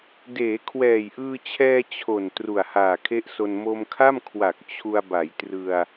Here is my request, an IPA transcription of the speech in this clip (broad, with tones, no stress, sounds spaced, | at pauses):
d eː˩˦ kʰ w ɛː˨˩ j ʔ ɯː˧ t͡ɕʰ ɛː˧ t͡ɕʰ o˨˩ n t r u˨˩ a̯ h aː˨˩ kʰ e˦˥ ʔ s o˧ n m o˧ m kʰ a˥˩ m kʰ w a˨˩ k̚ t͡ɕʰ u˧ a̯ b a˩˦ j t r ɯ˧ a̯